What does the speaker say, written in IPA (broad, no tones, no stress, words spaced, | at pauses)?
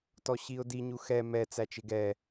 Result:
tɔɕiʊ̯di ɲuxɛ mɛ t͡sæt͡ʃɪɡɛ